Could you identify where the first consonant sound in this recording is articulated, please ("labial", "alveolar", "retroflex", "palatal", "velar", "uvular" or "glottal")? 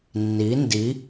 alveolar